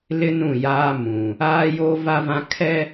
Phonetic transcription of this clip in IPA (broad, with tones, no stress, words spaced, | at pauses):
lɪ˦ nũ˦˨jaː˦ mũ˨ | aː˦joː˦va˦vã˦ kʰɛ˦